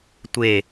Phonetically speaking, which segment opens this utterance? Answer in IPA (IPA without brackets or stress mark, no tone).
tʷ